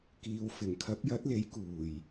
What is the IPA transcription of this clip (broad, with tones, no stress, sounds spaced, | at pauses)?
k iː˨ w f ɪ˨˩ ŋ kʰ ɐ˨˥ p̚ j ɐ˨˥ t̚ l e˨˥ j k uː˨˩ j